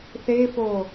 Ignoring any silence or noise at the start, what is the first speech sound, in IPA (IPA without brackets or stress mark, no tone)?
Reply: θ